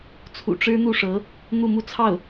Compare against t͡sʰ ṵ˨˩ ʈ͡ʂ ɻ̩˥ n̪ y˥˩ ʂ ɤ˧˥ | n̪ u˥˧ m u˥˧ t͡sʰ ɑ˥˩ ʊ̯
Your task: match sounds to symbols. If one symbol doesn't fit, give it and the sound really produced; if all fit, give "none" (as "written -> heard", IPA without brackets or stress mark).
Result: y˥˩ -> u˥˩